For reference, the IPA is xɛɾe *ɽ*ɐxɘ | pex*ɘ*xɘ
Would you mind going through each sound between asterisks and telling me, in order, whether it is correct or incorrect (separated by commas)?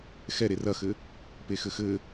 incorrect, correct